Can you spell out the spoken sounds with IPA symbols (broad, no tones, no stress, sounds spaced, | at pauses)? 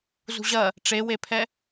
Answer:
z ṳ ʑ ɐ | ʈ͡ʂ e w e pʰ ɛ